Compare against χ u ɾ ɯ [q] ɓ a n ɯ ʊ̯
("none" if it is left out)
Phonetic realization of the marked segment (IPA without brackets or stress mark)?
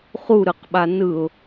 q